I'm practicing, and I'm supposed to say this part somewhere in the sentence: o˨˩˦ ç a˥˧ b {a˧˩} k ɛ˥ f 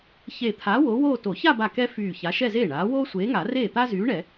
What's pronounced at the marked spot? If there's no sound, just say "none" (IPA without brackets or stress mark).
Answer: a˧˩